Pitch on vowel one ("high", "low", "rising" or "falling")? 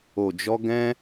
low